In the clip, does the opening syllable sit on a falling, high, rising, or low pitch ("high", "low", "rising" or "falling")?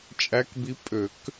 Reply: rising